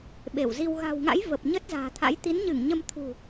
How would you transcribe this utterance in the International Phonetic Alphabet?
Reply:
ɓ e˧˩ w z i˧ w ɣ a̤˨˩ w ŋ a̰˧˥ j v ə˨˩ p̚ ɲ ə˦˥ t̚ z a̤ː˨˩ t̪ʰ a̰˧˥ j t̪ i˨˦ n ɲ ɨ˧˩ ŋ ɲ ə˧ m t̪ʰ ṳ˨˩

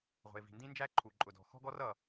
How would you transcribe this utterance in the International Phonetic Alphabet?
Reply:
ʁʷ ə̤˩ ɪ̯ v i̤˩ n d ĩ˥ n d͡ʒ æ˥ ǃʰ u˩ ǃʼ ʊ˩ d ɔ̤˩ x ɔ̤˥ ɡ ɔ˥ r ʌ˩

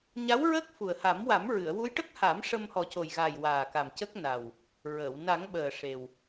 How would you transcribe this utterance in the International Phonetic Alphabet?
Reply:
ɲ a˧˥ w ɹ əː˦˥ k̚ f u˨˩ ə̯ h a˨˩˦ m w a˨˩˦ m ɹ ɨ˨˩˨ ə̯ w u˧˥ j ʈ ə˦˥ k̚ h a˨˩˦ m ʂ ə˧ m h ɔ˨˩ c o˨˩ j ɣ aː˨˩ j w aː˨˩ k a˨˩ m c ə˦˥ k̚ n a˨˩ w | ɹ əː˨˩˨ w n a˨˩˦ ŋ ɓ əː˨˩ ʂ e˨˩ w

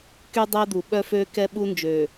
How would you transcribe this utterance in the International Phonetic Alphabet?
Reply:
k y˦ dˤ ɛ˦ d̪ u˨ ɓ œ˦ f ø˦ k ɛ˦ ɓ u˦ n d͡ʒ øː˨

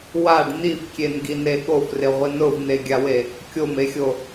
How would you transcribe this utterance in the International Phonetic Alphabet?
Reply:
w a ɖ n̪ i f kʲ e n ɡ i n e ɠ o f r ɪ ʁʷ ɪ n ʊ v n̪ e ɡʲ a w e | kʲ o m e xʲ o

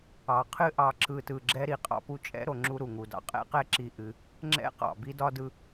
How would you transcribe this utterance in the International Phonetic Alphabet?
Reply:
ɑ˩ qʰ ɨ˦ ʔ ɑ˨ ǁ ɯ˨ t ɯ˩ ɡ͡ǁ ɛ˦ ɾ i˩ qʼ ɑ̰˦ p u˦ t͡ʃʼ ɛ̰˥ ɾ o˨ ŋ͡ǁ u˦ ɾ u˩ ŋ u˩ d ɑ̰˦ qʼ ɛ̰˥ q ɛ˥ ǁ i˦ ʔ ɨ˨ | ŋ͡ǁ ɛ̰˥ q ɑ̰˩ b i˥ d ɒ˥ d ɯ˦

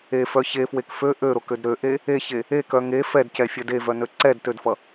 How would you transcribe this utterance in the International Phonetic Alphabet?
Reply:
e f œ ç e f w e k f ø ʔ ø ɾ o k ø d ɾ ø ʔ e | e ç e | e k œ ŋ e f ɛ d c ɛ fʲ œ d e v œ n ø ǀ ɛ d t ø d f ʌ

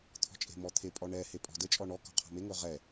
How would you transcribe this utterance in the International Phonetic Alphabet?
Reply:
t̪ʰ ɔ̤ t͡ʃʼ e̤ m ɔ t̪ʰ e pʼ ɔ ɳ ɛ h e pʼ ɔ̤ d ə t͡ʃʼ ɔ ɳ ɔ k ɔ̤ qʰ ɔ̤ m e ŋ ɵ ʁ ɛ

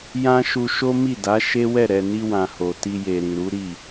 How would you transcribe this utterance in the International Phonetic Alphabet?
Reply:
j ã˦ ʃ u˧ ʃ o˦ m i˦˨ d a˨˦ ʃ e˦ w ɛ˦˨ ɾ ɛ˨ n i˧ w ã˨ h o˨ t i˧ j e˨ ɾ ĩ˨ ɾ u˨˦ ɾ i˦˨

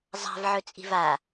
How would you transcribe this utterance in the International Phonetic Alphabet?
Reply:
zˤ a̤ v ʕ ɵ t͡sʼ i̤ v a

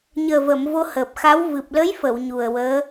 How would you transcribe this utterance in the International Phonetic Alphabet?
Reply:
ɲ əː˨˩ v ə˨˩˨ m v o˧ h əː˨˩ p̚ x a˧˥ w v ɨ˨˩ p̚ l ə˧˥ j f ə˨˩˨ w ɲ u˨˩ ə̯ w əː˧˥

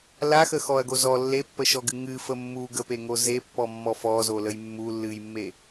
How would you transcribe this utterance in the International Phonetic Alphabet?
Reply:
l a x ə x ɔ ɐ̯ ɡ o z ɔ lː e pː ə ʃ ɔ ɡ ɨ ŋ ɨ f ə mː u ɡ ə p e ŋ o z e pː ɔ mː ɔ f ɔ z o l ə j mː u lː ɨ j mː e

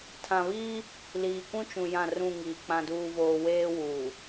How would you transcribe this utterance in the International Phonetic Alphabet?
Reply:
tʰ ã˨ β iː˦ | l iː˨ kʷ ũ˦ t͡ʃ ũ˨ j ã˦˨ r ũ˦˨ ŋ iː˨ k͡p ã˨ d uː˨ v oː˨ w eː˦ w uː˨

